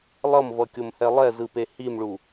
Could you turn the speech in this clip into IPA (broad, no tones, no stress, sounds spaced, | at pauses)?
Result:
lˠ ʌ m v ʌ kʲ o m h ɛ lˠ ɛ z ɯ p e h i m ɭ u